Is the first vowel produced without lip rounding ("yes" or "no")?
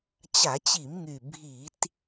yes